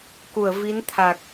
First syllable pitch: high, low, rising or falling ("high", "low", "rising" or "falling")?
low